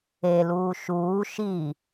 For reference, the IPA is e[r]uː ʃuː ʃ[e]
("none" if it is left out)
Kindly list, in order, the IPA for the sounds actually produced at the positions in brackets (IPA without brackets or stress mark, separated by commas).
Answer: l, i